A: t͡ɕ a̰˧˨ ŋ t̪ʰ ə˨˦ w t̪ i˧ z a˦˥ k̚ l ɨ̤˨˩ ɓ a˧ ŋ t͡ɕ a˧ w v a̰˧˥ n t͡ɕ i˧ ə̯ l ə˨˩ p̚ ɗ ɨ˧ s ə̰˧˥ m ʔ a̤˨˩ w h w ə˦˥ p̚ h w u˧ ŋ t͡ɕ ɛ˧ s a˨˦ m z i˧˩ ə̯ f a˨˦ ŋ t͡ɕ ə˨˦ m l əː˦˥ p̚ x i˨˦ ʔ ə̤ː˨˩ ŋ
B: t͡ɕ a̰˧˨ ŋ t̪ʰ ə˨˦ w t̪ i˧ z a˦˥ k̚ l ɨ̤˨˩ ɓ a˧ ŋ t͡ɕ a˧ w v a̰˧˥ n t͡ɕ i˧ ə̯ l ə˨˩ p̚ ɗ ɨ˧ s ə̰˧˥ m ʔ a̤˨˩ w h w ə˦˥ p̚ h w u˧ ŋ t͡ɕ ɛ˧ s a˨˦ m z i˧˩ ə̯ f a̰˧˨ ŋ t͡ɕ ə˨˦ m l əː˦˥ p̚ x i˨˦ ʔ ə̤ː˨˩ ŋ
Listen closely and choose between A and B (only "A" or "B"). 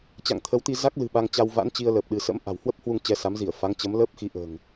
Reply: A